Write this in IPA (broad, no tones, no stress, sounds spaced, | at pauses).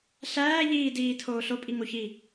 ɬ æː ʎ iː d iː tʰ oː ɬ o pʼ i ŋ o ç iː